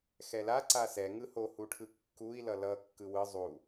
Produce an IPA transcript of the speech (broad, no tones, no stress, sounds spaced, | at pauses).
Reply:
x ɛ l a ǀ a s ɛ ŋ ɯ h o h u ʈʰ ɯ kː u i̯ l ʌ l ʌ kː ɯ w ɯ zˤ u